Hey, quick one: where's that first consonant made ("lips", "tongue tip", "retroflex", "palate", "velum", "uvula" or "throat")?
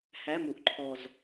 throat